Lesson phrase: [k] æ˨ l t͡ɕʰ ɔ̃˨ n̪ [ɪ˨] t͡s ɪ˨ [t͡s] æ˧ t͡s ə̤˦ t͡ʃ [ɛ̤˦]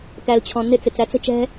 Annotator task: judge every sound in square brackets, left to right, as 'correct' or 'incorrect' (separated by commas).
correct, incorrect, correct, correct